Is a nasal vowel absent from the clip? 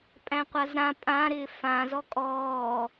no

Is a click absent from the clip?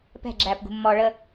no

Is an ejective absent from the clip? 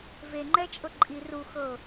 no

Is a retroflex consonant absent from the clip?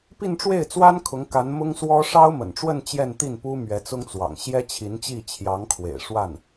no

